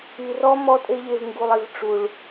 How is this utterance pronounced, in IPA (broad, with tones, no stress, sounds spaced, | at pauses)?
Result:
i˨ r ɔ˦ m ɔ˦ tʼ e˦ ʎ e˧ v ŋ ɡ u˧ lˠ i˧ v ʈ͡ʂ u˨ ɭ